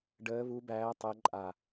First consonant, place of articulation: retroflex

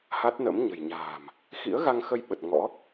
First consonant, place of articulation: glottal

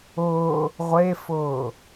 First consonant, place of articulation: uvular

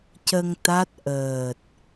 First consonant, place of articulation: palatal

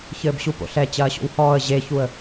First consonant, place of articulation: palatal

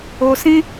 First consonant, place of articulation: alveolar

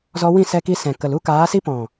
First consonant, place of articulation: alveolar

